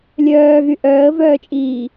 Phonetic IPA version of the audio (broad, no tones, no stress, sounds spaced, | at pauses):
lʲ œː ɣ y ʔ œː ə̯ v œː t͡ʃʼ iː